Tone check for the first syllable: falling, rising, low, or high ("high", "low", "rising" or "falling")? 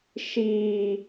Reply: low